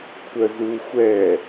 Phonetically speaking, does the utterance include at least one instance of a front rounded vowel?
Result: yes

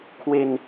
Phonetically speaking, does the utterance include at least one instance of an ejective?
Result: no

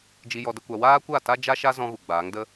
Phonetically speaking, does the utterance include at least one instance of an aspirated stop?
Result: no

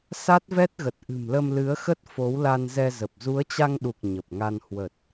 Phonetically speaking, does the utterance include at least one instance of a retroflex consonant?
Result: no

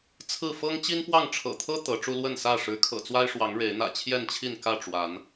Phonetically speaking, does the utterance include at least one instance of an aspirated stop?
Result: yes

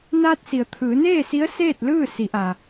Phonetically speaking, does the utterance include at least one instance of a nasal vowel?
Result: no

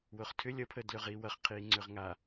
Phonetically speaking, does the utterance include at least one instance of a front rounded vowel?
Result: yes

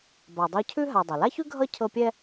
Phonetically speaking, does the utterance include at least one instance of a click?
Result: no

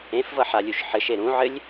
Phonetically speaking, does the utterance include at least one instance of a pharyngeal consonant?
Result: yes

